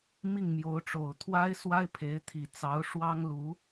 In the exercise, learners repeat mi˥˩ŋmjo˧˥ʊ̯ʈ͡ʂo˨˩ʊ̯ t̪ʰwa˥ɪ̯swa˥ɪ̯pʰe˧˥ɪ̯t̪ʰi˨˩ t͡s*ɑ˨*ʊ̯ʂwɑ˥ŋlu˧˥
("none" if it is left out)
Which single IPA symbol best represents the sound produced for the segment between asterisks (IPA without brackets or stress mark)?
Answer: ɑ˧˥